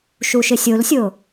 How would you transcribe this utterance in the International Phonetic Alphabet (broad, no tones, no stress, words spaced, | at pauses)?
ʃuʃɪsʲolsʲo